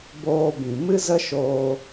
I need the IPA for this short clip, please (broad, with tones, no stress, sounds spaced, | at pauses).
b oː˧ b ĩ˨ m ɨ˦ z ə˦ ʃ oː˧